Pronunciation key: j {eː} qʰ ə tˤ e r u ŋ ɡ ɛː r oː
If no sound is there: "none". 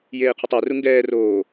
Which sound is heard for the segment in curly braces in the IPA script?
eː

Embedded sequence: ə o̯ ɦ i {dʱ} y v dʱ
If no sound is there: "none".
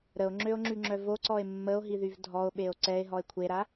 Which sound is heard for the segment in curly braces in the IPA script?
ð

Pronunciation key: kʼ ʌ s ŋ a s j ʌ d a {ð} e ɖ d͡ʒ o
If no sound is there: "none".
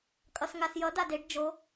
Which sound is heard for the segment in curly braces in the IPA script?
d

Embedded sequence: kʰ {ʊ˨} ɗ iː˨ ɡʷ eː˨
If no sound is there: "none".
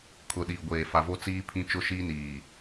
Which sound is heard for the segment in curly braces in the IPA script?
ʊ˨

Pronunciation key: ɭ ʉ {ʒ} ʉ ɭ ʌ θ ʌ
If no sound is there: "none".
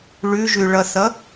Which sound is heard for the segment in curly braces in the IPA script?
ʒ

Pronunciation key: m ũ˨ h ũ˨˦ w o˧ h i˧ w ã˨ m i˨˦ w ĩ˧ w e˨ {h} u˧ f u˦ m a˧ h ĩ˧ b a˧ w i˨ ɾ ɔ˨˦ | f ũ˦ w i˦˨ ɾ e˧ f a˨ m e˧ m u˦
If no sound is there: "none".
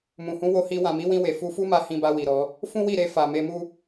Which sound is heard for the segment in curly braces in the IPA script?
f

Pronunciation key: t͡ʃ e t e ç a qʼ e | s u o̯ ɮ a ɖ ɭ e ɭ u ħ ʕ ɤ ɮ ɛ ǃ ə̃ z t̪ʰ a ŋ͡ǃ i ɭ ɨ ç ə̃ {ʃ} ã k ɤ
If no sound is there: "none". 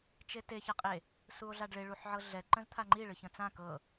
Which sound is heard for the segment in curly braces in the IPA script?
t͡s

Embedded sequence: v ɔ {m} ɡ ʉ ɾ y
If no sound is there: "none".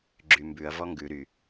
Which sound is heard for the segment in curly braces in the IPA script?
ŋ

